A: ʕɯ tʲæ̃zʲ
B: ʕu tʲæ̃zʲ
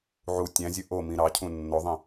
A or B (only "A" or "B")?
B